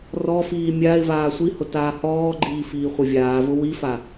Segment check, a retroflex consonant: absent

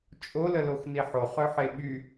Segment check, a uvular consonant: present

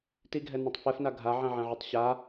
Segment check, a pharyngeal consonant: present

